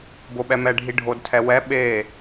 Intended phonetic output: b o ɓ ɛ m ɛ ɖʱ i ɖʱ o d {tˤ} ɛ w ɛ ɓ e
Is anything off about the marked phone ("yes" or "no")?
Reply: yes